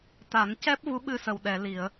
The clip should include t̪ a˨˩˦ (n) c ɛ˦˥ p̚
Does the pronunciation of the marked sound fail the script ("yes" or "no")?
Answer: no